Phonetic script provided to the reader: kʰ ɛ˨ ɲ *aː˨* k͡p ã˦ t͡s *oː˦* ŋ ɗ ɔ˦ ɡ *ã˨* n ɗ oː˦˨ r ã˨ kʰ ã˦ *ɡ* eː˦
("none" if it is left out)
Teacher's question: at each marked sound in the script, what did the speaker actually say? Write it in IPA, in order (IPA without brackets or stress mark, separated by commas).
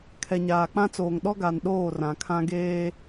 aː˨, oː˨, a˨, ɡ